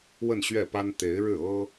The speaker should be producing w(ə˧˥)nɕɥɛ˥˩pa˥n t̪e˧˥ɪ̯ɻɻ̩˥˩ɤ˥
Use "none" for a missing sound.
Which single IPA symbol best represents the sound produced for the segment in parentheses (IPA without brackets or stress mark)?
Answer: ə˥˧